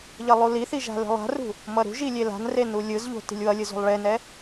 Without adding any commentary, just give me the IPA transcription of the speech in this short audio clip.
ʎ ʌ lˠ u l i θ i ʒ a̤ l e̤ lˠ a̤ r ṳ | m ʌ ɾ ṳ ʒ i lʲ e l a̤ n r e n u lʲ ɯ z ʎ o̤ t i̤ lʲ w ʌ lʲ ɯ z o̤ lˠ ɭ e n ɛ

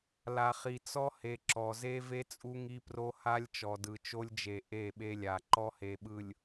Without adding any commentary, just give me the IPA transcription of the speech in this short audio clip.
l a˨ χ i˨ t͡s ɔ˦ h e˨ ǁ ɔ˨ z e˦ v e˦ t͡sʼ u˦ ŋ i˦ p r o˦ h a˦ lʲ t͡ʃ ɔ˨ d ɯ˨ t͡ʃ o˦ lʲ d͡ʒ e˨ ʔ e˦˨ ɓ e˦ lʲ a˨ ǃ ɔ˦ h e˨ ɓ ɯ˨ lʲ

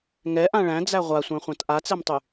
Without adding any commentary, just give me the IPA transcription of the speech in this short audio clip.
ŋ ɛ ʔ ã ɭ æ̃ d͡z æ ʁʷ a sʷ æ̃ χʷ ã t ʔ a t͡s ɛ m tˤ y

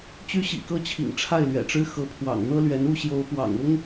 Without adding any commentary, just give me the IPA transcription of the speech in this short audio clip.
t͡ɕ y˥ ɕ ḭ˨˩ k ɤ˥ t͡ɕʰ ḭ˨˩ ŋ ʈ͡ʂʰ a˥˩ ɪ̯ l ɥ ɛ̰˨˩ ʈ͡ʂ ɻ̩˥ x ɤ˧˥ pʰ w ɑ̰˨˩ ŋ n̪ ɤ˥ l ɥ ɛ˧˥ n u˥˩ ɕ j o˧˥ ʊ̯ p w ɑ̰˨˩ ŋ ʊ˥ ŋ

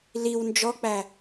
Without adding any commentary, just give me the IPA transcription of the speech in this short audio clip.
l i w n d͡ʒ ɔ k͡p æ

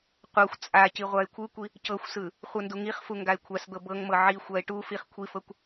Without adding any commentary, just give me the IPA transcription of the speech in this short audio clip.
qʷ ɤ xʷ t͡sʼ a c i ʁʷ a ɪ̯ kʷʰ ɯ kʷ i | c ɤ xʷ s ɯ | χʷ ɯ n d u ŋ i χ f u ŋ ɡ a ɪ̯ kʷʰ a s d̪ ɤ b ɤ ŋ m ɤ ʕ i xʷ a ɪ̯ ʈ u f i χ kʷʰ i f ɤ kʷ

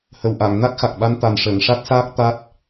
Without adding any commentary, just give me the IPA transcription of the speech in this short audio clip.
h ə˨˩ w ʔ a˨˩˨ ŋ n a˦˥ k̚ x a˨˩ k̚ ɓ a˧ n t̪ a˨˩ n ʂ əː˨˩˨ ŋ ʂ a˦˥ t̚ s aː˦˥ k̚ t̪ a˦˥ t̚

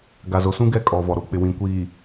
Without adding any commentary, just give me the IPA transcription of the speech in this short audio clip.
ɡ a˨ z o˨ s ũ˦ ɡ ɛ˦ kʼ ɔ˨ v ɔ˨ ɾ o˦ k͡p ɪ˨ w ĩ˨ kʷ iː˨

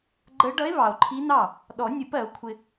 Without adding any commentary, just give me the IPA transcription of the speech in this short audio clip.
ɡ͡ǃ ə˧˥ ɖ ʌ˧˥ e̯ β ɑ˨ o̯ ǃʰ i˧˥ n̪ ɑ˥˩ | ɗ ɔ˨˩˦ nʲ ʊ˨˩˦ p ɜ˨˩˦ o̯ kʷʰ ɪ˨

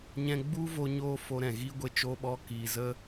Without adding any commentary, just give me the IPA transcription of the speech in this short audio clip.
ɲ ɛ̃˧ ɡ͡b u˦ v o˧ ɲ oː˧ f o˧ ɾ ɛ̃˨ ɣ i˦ ɡʷ e˦ t͡ʃ o˧ ɓ ɔ˧ k iː˨ z ə˦

